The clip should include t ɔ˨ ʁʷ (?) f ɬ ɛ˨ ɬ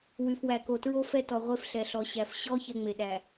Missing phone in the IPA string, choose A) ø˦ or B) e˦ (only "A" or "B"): B